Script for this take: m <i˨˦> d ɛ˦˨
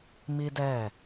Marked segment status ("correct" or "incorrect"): incorrect